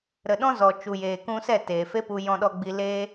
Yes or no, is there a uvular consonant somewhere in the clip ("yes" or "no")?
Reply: no